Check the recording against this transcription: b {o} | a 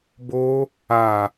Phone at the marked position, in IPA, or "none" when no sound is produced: o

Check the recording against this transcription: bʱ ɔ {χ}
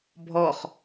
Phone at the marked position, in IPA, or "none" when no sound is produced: χ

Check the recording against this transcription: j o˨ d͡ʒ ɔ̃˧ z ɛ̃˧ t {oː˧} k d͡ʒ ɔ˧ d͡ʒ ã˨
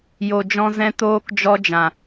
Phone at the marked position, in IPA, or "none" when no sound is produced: oː˧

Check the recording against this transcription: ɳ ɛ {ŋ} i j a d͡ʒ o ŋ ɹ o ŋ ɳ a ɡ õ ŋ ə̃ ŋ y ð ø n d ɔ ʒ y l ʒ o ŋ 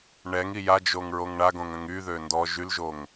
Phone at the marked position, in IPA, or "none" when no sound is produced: ŋ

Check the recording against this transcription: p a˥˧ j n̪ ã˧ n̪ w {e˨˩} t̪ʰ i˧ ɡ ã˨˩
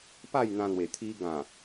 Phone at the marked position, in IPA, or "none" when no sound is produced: e˨˩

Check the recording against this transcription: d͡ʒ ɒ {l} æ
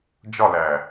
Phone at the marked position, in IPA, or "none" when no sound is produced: l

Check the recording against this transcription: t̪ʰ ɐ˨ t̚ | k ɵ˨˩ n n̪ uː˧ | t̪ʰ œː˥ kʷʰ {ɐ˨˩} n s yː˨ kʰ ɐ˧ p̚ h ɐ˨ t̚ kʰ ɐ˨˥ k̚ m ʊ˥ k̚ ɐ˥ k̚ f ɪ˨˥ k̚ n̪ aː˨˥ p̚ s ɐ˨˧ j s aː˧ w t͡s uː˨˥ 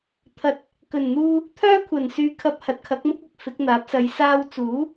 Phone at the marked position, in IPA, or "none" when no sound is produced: ɐ˨˩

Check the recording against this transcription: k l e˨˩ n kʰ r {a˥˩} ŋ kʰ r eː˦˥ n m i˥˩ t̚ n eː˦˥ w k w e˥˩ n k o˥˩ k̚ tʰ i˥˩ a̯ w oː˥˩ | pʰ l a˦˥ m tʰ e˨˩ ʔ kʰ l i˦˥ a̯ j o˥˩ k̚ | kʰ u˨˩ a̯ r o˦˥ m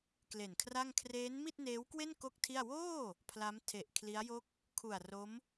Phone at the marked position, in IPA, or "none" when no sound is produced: a˥˩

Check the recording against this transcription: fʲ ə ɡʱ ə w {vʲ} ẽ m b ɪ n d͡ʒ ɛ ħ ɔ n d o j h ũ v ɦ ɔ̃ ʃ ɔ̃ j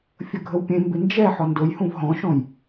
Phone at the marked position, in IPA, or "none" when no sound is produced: pʲ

